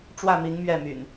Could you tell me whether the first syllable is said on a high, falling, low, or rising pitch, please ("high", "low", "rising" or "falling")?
falling